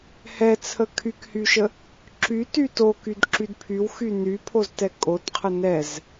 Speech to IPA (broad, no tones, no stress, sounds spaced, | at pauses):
h ɛ t͡sʰ ə kʰ y k h y ʃ ə | ǁ y t y t o k y d ǁ y d pʰ y w x y n y pʰ o z t ɛ kʼ o t qʰ ə n ɛ z